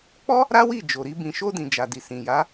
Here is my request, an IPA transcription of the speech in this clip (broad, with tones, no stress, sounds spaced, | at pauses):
k͡p ɔ˦ | ɾ a˦ w i˦˨ d͡ʒ o˨ ɾ i˧ b ĩ˨ ʃ o˧ d ĩ˨ d͡ʒ a˨ d i˨ s ĩ˨ j a˨˦